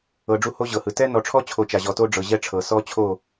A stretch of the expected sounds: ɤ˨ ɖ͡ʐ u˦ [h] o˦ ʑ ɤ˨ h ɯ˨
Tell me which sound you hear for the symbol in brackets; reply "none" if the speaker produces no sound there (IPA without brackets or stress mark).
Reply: h